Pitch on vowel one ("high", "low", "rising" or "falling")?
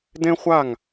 high